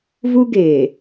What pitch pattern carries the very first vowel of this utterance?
high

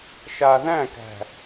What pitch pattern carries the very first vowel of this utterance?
low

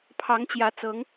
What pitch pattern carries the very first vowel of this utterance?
rising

